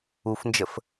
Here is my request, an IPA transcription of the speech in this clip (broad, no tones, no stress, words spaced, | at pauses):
ufnd͡ʒəf